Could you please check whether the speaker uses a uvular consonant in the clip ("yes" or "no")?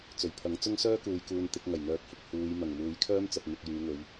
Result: no